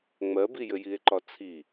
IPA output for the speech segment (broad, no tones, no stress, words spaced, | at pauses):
ŋ͡mɜbijɘ jie̯ǃɒt͡sʰi